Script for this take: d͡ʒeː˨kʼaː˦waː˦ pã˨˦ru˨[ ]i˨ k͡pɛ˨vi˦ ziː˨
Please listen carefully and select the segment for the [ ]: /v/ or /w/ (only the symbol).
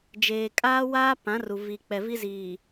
v